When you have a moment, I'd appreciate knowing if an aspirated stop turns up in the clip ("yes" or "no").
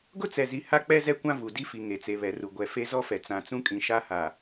no